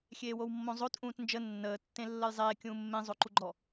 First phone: xʲ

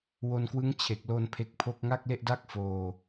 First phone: w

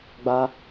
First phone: ɡ͡b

